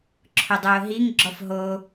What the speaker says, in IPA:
ǁʰʊdˤʊːɦiŋ ɡ͡ǁɔfɦo

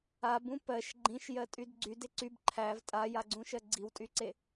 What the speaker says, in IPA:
abũ pɜʃ ɡ͡ǃĩʃjɜtʼyd ɡ͡ǀyde ǀyb ǃʰæv tʼajaɡ͡ǀũʃɜ ɡ͡ǀiwtʼyǀe

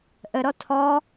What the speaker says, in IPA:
ʔəɾɔ tʰɔ

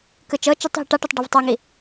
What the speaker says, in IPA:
kɯt͡ʃɤt͡ʃutˤ ɦiʈaʈɛtˤ ɖɯvtˤaŋi

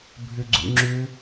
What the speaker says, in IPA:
bʱʏɡ͡ǀṵŋ͡ǁʏ

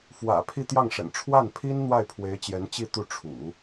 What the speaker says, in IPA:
fwä̰˨˩ pʰi˥˧t̪jɑ˥˩ŋʂə̰˨˩n ʈ͡ʂʰwa˥˩npʰi˥n n̪wa˥˩ɪ̯pʰwe˧˥ɪ̯t͡ɕjɛ˧˥nt͡ɕi˥˧ t̪u˥˩ʈ͡ʂʰṵ˨˩˦

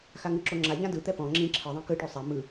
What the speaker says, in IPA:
xaŋɯǁo ŋ͡ǁaʎã dɯt̪ɛ pɔ̃ ŋ͡ǁĩ ǁʰɯðˤĩ kɯʈo sˤɛ mɯ

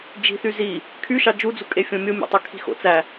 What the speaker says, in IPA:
d͡ʒi̤θy zi | kʰyʃɑ d͡ʒud͡zukʼefʲõ mʲomʲo̰tˤøkʰi̤ xo̰t͡sæ

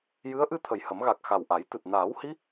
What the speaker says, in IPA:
jɨ˧˥ə̯ ʔɨ˧ t̪ʰə˨˩jhə˨˩˦mɣa˨˩k̚ xa˨˩wʔa˨˩˦jt̪ɨ˨˩t̚ naː˨˩˦whi˧˥

